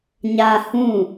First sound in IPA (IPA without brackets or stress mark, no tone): ɲ